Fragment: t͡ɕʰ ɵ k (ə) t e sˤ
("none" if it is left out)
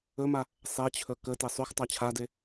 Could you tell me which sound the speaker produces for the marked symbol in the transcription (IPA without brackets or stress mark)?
ə